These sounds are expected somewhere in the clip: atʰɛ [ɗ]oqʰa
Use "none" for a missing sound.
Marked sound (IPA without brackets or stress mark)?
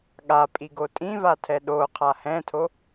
ɗ